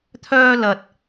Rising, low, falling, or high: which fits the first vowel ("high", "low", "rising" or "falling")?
high